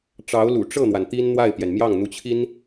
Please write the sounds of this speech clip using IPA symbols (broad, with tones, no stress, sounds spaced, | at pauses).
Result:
ʈ͡ʂ ɑ˧˥ ʊ̯ l ṵ˨˩ ʈ͡ʂ ɤ˥˩ n̪ w a˩ n t̪ i˥ n n̪ w a˥˩ ɪ̯ p j ɛ˩ n m j ɑ˥˩ ŋ n̪ u˧˥ t͡ɕʰ i˥ n